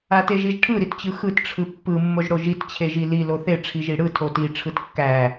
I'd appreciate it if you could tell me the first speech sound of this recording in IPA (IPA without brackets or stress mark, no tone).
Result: a